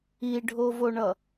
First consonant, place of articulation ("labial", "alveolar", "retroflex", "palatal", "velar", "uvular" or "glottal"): retroflex